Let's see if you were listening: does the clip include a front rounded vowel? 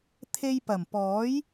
no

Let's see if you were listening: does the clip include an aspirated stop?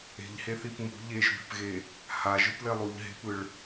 no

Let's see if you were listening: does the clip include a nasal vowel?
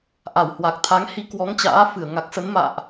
no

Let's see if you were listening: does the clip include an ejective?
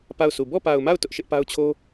no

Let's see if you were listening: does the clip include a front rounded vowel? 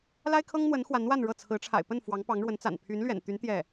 yes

